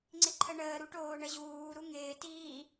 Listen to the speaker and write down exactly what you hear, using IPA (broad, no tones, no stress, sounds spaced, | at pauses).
ŋ͡ǀ ɪ ǃʰ ə ɳ əː ɾ u ʈ oː ɳ ə ʑ uː ɾ u ŋ ɪː t iː